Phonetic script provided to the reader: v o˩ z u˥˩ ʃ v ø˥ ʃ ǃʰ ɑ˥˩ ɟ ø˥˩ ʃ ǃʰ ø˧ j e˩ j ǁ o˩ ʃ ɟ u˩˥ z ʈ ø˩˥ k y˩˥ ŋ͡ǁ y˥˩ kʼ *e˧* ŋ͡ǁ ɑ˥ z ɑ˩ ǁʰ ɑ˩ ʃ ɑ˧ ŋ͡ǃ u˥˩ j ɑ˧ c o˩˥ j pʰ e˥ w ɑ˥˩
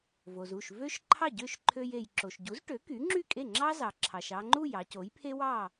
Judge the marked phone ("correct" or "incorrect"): incorrect